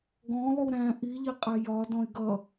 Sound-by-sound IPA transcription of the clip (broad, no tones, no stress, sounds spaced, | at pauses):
ɡ ɔ̃ lˠ u ɾ æ̃ ʔ i ʎ i qʼ æ j ɒ d ɔ̃ e̯ ɡ ʌ